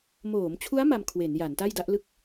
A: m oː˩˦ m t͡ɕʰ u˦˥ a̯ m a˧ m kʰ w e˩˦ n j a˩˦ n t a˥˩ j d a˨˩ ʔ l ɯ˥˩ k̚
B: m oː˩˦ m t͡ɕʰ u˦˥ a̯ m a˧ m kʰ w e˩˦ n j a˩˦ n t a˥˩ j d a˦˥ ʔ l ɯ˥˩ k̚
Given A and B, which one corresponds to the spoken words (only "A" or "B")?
B